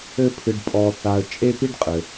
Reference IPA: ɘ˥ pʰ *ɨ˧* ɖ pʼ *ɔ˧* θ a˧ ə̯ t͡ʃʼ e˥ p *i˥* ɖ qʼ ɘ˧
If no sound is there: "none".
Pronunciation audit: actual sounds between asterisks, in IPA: ɨ˧, ɔ˧, i˥

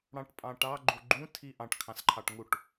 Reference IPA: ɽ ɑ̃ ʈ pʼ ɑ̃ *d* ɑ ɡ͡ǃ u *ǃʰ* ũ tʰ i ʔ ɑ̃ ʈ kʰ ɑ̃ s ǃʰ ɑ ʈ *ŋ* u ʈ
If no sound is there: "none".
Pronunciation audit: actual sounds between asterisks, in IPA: ʈ, ɡ͡ǃ, ŋ

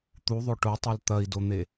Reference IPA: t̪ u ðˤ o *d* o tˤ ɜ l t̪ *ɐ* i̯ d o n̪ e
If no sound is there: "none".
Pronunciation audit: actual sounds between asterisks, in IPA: ʈ, ɐ

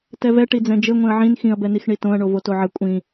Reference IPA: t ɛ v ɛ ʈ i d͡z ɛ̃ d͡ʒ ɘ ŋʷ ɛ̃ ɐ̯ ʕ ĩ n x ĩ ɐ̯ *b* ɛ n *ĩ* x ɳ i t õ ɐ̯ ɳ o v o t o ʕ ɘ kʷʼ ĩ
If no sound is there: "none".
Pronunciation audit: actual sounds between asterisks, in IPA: b, i

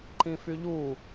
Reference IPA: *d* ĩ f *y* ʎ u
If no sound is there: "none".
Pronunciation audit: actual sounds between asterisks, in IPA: ǃ, y

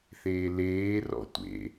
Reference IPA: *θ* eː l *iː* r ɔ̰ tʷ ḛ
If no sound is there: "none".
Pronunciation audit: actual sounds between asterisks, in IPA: θ, eː

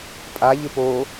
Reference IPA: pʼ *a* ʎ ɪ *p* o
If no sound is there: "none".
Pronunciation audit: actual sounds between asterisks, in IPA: a, p

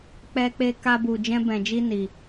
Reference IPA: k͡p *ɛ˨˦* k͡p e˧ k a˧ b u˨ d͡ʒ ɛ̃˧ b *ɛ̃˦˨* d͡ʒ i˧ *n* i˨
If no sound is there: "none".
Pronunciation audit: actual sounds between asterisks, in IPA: ɛ˧, ɛ̃˨, n

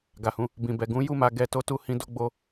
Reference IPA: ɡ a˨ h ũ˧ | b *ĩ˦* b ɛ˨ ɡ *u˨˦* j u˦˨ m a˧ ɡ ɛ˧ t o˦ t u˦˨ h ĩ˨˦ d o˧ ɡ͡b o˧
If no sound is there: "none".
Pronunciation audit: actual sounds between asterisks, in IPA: ĩ˨, ũ˨˦

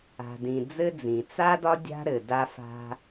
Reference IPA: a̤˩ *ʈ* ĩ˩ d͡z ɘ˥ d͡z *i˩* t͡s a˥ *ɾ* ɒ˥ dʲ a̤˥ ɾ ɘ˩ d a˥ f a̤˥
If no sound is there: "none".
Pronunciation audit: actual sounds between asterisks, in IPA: d, ĩ˩, d

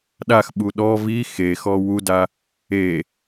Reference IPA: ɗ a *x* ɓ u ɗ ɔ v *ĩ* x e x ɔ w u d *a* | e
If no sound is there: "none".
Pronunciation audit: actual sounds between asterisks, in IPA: x, i, a

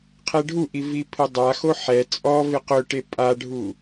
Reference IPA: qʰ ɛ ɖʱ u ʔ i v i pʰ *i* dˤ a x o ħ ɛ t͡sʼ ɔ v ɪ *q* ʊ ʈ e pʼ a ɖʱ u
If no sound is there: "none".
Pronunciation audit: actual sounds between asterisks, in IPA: ɪ, q

